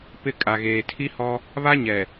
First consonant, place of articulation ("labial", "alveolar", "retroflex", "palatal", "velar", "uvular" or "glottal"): labial